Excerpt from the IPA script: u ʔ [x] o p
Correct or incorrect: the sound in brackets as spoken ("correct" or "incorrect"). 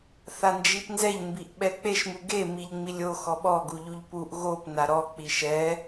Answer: incorrect